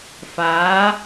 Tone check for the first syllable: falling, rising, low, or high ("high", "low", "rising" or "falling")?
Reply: rising